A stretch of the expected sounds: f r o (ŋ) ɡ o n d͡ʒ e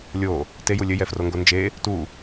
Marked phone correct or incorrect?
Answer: correct